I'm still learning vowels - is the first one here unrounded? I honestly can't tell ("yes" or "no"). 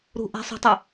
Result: no